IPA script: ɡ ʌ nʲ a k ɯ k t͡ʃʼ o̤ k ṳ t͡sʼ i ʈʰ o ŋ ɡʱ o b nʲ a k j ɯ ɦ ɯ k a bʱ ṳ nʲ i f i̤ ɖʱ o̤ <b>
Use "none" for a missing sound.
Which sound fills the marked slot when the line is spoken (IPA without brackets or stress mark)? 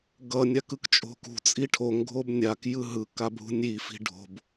b